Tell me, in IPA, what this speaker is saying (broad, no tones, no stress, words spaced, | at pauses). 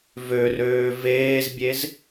vørøː veːzbʲez